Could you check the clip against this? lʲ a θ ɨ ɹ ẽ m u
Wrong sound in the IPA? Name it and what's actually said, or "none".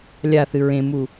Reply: none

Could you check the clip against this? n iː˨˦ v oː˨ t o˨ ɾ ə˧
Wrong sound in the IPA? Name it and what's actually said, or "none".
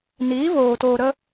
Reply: o˨ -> oː˨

